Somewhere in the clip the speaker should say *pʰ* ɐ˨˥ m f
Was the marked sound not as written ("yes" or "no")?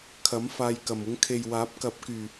yes